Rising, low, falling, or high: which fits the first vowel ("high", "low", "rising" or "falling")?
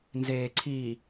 low